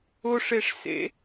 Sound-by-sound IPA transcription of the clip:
ʊ ʂ e ʂ s ḛ

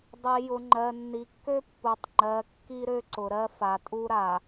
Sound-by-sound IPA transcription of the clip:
dˤ i˨ j ʊ˨ ŋ͡ǃ ɜ˨ nː i˨ kː ø˦ pː u˨ tˤ ŋ͡ǃ ɜ˨˦ kː i˦ ɾ ø˦ ǀ ʊ˨ ɾ ɜ˦ f a˨ tʼ u˦ ɾ a˨

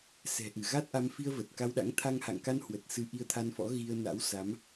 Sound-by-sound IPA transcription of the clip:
s ɛ̤˨˩ ʔ ɨ˧˩ ɣ a˦˥ t̚ ʔ a˧ m f i˧ ə̯ v ə˨˩ t̚ k a˧ w ɗ a̰˧˥ ŋ t̪ʰ a˧ ŋ h a̰˧˨ ŋ k a˧ n h w ə˨˩ t̚ s ɨ˧ ʔ i˧ ə̯ t̪ʰ a˧ n f ɔ̰˧˥ ɣ i˧ ə̯ n a̰˧˥ w s a˨˦ m

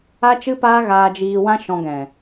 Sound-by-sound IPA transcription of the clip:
a˦ t͡ʃ ɨ˦ p aː˦ ɣ aː˧ d͡ʒ iː˧ w ã˦ ʃ ɔ̃˧ ɡ ɛ̃˨

